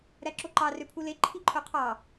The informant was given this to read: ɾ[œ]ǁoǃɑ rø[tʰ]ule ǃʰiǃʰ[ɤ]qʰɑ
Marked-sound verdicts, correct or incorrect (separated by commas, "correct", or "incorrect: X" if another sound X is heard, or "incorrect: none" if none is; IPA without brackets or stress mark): incorrect: æ, incorrect: pʰ, incorrect: o